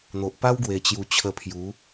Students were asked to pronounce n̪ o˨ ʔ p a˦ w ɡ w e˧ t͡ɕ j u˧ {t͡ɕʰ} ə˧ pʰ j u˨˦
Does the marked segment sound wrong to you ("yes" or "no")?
no